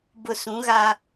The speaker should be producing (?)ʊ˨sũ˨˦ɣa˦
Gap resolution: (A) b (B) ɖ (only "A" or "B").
A